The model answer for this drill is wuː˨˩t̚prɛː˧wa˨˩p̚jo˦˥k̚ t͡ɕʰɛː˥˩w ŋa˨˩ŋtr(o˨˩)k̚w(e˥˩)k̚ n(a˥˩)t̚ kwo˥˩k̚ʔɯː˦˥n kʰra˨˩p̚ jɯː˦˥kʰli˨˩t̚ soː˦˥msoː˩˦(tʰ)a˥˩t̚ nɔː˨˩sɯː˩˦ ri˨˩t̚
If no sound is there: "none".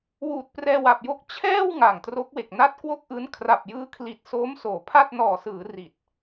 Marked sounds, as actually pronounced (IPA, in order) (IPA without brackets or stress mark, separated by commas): o˦˥, e˨˩, a˦˥, pʰ